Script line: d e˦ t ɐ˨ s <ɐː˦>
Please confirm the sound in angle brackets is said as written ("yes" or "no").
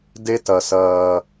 yes